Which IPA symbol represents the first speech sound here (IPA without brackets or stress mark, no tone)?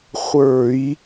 χʷ